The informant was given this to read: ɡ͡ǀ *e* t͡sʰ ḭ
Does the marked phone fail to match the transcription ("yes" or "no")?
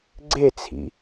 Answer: no